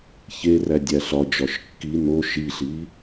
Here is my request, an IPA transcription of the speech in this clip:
ç e r æ dʲ æ ɬ ɒ d͡ʒ ɒ ʃ kː i n o ʃ i ɬ i

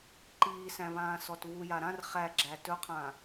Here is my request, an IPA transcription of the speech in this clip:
ǃ iː s æ̃ β ãː s ɔ t β u j a ɾ ã r χ æ ɡ͡ǁ æ t ɵ qʰ ã

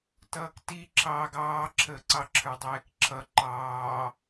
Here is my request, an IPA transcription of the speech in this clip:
t ʌː k t i ǁʰ ɑː ɡ ɑː ǁʰ əː ǀ ɑ ǁʰ ə˞ dˤ ɛː k ǁʰ ʌ ǃ ɑː

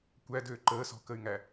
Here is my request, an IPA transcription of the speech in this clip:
kʷ æ d øː ǃ əː s ɔ̤ k ə y̯ ŋ æ

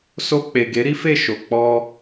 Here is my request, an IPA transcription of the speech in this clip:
s o˧ k͡p e˨ ɡ e˨˦ ɾ i˦ f e˦˨ ʃ o˨ k͡p ɔ˧

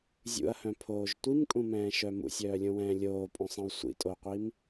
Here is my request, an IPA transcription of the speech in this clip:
zʲ ṵ ɐ̯ h œ̃ pʰ oː ʒ tʷ i m kʼ ũ m ɛ̃ː ʃ œ m ṵ sʲ œː lʲ õ w ɛ̃ː lʲ oː pʼ õ sˤ ĩ w sʷ ḭ tʼ o qʷ i m

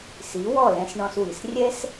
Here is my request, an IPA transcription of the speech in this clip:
s i˩˥ w ɔ˥˩ l ɛ̃˧ s ɳ ɔ̃˧ s w i˩ s rʲ ɛ˥ s

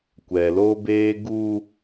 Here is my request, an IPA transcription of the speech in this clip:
kʷ ɛ˨ l o˦ b eː˦ ɡ u˦

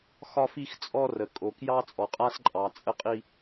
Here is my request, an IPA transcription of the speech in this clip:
x ɒ˦ f i˦ x t͡sʼ ɔ˦ r ə˨ kʼ o˨ k j ɑ˦ t͡sʼ ɔ˨ qʼ a˦ s ǃʼ ɑ˨ t͡sʼ ə˦ qʼ i˦

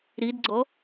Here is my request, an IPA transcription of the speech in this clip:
ɾ i d ɡ͡ǀ ɔ

